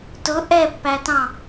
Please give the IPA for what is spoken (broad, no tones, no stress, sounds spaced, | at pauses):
t ʊ ʔ ɛ pː æ t ɑ̃